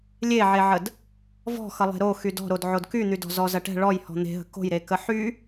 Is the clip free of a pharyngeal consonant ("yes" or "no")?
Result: no